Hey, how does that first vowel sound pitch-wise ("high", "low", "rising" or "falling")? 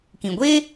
low